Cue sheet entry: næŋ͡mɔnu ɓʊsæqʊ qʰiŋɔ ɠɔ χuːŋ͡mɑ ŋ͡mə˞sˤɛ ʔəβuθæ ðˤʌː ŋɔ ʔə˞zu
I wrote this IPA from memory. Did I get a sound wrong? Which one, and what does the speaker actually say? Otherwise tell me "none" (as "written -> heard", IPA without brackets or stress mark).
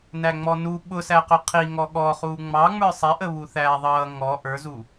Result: none